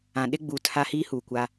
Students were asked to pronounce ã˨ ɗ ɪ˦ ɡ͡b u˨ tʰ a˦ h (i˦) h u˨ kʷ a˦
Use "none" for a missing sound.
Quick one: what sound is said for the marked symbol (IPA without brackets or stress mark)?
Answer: i˦